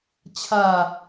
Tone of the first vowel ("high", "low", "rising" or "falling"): falling